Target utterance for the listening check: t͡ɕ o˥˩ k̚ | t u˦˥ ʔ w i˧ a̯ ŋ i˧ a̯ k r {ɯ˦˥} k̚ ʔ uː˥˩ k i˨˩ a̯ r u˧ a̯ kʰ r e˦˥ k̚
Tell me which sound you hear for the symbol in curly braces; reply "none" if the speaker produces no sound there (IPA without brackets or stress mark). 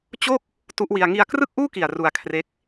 ɯ˥˩